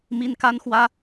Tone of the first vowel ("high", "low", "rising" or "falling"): high